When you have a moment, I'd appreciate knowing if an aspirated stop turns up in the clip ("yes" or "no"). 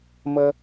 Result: no